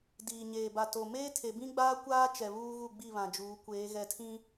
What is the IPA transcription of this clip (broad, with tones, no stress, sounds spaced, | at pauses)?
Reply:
d iː˨ ɲ eː˨ b a˨ t o˨ m eː˦ tʰ e˨ b ĩ˦ ɡ͡b aː˦ kʷ aː˦ t͡ʃ ɛ˨ β uː˦ ɣ u˦˨ ɡ͡b i˦˨ β ã˨ d͡ʒ uː˨˦ kʷ eː˨˦ ɣ ɛ˨ tʰ ĩ˦